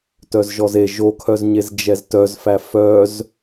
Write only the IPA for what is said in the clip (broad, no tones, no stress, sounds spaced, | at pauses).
t œ z ʒ ɔ z e ʒ o kʰ œ z ɲ e z d͡ʒ ɛ z t œ z f æ f œ z